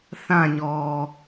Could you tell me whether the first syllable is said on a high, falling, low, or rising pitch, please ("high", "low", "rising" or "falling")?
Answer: falling